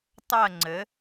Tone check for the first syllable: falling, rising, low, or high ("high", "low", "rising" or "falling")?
falling